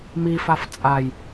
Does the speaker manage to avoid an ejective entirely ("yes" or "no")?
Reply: no